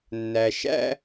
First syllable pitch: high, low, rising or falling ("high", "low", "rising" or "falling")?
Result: low